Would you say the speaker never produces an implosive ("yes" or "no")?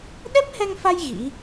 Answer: no